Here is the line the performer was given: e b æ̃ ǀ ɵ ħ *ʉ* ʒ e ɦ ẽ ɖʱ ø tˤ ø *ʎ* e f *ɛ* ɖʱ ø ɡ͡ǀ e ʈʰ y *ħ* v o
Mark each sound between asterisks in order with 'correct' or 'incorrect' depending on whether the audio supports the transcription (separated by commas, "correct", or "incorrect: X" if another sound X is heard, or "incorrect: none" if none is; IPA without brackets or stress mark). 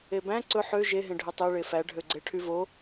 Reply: incorrect: ø, incorrect: ɭ, incorrect: æ, incorrect: none